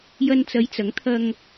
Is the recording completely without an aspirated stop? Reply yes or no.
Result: no